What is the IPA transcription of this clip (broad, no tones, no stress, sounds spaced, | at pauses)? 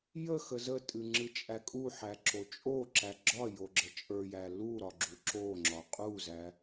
j ə x ə z ə tʼ ɨ ŋ͡ǁ ɨ t͡ʃʼ æ kʼ u ħ æ ǁ o t͡ʃʼ o ǁ æ ɡ͡ǁ ɒ j o ɡ͡ǁ ə t͡ʃʼ ə˞ j æ l u ɾ ɒ ɡ͡ǁ u ǁ o ŋ͡ǁ ɒ qʼ u z æ